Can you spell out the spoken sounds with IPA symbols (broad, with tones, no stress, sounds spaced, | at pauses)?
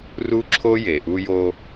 r u˥ ǁʰ o˥ j e˩ ʔ u˦ j o˦